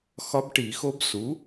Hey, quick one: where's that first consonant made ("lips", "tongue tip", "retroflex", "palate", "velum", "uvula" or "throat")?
velum